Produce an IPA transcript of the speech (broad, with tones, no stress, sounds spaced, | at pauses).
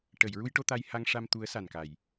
ʈ ə˨˩˨ j ɹ u˧ j ʈ o˧ t̪ a˧ j h a˧ ŋ ʂ a˧ m t̪ u˧˥ ə̯ s a˨˩ n k a˨˩˨ j